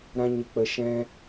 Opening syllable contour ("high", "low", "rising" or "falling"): high